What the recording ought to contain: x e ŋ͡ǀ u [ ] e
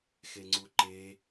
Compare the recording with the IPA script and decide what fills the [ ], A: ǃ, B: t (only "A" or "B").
A